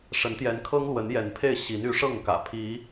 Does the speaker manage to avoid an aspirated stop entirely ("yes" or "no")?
no